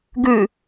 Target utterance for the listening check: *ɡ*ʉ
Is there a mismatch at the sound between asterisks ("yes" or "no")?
no